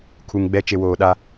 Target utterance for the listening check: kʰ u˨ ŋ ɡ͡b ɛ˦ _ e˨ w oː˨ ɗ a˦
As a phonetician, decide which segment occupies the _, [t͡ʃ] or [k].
t͡ʃ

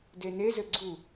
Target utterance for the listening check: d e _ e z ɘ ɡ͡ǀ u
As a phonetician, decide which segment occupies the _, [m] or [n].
n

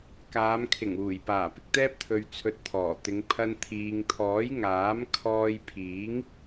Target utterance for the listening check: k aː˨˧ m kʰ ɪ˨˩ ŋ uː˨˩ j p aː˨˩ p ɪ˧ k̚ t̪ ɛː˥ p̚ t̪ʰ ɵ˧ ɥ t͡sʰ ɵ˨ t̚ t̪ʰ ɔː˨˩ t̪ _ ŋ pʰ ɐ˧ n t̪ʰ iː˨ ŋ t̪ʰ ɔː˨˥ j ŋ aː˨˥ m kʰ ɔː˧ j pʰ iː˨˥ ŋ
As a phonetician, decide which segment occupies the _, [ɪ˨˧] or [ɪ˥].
ɪ˨˧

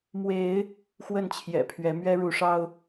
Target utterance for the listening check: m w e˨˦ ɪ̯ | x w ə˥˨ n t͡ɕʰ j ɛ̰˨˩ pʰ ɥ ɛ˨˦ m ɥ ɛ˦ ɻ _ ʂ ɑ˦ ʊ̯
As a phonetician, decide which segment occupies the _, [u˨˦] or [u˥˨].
u˨˦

